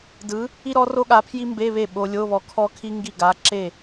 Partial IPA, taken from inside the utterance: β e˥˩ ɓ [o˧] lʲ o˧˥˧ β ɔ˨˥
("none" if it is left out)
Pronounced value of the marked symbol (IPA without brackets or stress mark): o˧